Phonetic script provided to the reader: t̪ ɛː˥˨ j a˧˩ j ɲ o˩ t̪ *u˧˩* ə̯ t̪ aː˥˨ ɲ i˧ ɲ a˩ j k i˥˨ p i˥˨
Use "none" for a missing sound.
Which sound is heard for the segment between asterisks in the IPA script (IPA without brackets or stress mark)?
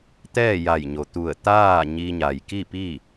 u˧˩